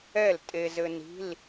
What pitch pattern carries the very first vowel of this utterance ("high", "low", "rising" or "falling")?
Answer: falling